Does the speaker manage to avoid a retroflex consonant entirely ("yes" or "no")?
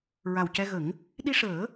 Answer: no